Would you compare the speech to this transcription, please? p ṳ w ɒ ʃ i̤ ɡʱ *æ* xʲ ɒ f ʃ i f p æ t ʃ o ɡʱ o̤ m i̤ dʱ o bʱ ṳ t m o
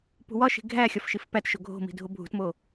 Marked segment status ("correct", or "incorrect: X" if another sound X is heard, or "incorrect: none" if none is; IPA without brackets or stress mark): correct